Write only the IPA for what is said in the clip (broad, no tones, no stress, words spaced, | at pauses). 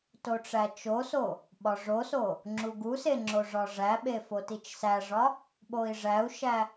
toʈ͡ʂæt͡ʃoso | ɓɒʐoso | ŋ͡ǁuɡuse ŋ͡ǁoʐɒʐæɓe fotit͡ʃsæʐɒ | ɓoi̯ʐæu̯ʃæ